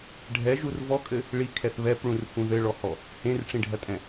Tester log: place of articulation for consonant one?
retroflex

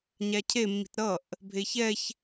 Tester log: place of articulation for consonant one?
palatal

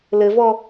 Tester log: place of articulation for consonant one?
alveolar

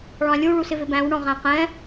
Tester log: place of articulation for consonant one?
retroflex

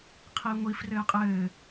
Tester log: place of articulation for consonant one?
uvular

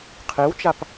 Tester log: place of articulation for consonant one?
uvular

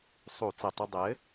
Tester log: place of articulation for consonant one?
alveolar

